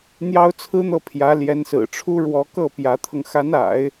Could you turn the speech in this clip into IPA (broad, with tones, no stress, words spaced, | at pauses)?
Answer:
n̪jɑ˥ʊ̯t͡sʰɹ̩˥n̪ɤ˥˩ pʰjä˧˥ ljɛ˧˥nsɹ̩˨˩ʈ͡ʂʰu˥ ɻwɔ˧˥kɤ˥˩ pjä˧˥t̪ʰɤ˧ŋ xa˧˥na̰˨˩˦ɪ̯